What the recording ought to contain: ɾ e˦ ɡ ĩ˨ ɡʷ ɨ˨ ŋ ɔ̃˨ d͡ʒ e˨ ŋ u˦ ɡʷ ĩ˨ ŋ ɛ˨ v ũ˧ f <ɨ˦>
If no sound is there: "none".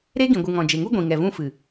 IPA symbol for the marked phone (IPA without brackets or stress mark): ɨ˨